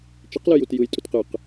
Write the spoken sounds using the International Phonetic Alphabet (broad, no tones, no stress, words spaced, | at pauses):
t͡ʃiqlɯjut jɯjtʼut qɯq